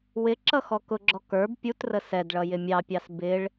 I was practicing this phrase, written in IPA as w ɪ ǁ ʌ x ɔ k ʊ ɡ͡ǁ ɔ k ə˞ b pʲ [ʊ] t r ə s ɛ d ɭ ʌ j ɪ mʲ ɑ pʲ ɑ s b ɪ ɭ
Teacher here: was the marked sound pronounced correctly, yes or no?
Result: no